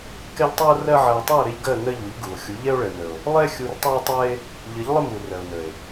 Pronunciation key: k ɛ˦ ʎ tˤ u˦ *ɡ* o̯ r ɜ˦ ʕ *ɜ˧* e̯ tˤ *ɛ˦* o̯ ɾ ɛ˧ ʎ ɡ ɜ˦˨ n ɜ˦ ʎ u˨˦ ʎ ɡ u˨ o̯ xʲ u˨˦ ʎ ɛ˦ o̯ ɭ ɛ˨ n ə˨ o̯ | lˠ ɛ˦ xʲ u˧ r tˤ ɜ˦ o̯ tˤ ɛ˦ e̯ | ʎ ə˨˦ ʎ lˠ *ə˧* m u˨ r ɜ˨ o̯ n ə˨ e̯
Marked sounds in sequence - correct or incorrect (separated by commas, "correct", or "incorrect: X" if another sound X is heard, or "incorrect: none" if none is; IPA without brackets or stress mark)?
incorrect: none, correct, incorrect: ɛ˦˨, incorrect: ə˦